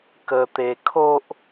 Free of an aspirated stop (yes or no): no